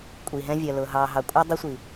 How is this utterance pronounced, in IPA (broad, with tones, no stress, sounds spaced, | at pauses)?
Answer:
kʷʼ i˨ ɦ ɛ̃˧ vʲ ɜ˨ l ʊː˨ ɦ ɑː˨ ɦ ɑ˨ kʷʼ ʌ˧ dˤ i˧ sʷ i˨